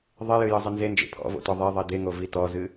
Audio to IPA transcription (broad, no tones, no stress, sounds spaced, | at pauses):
ðˤ e j ɨ j ə zˤ ɨ n z e n d͡ʒ ḛ pʰ ɔ̰ v o̰ t ɔ ðˤ e ðˤ i d̪ e ŋ o v i t ɔ z ɨ